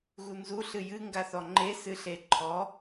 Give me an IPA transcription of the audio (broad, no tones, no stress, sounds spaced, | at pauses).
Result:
ɣ u n z u ɬ ɨ j ɨ ŋ ɡ a θ ɔ ŋ͡ǃ e s ɨ ɬ e ǃʰ ɔ